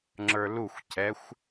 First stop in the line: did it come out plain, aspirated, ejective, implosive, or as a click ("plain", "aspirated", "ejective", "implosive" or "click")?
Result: click